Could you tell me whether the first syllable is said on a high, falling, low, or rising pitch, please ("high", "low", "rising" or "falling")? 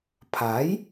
rising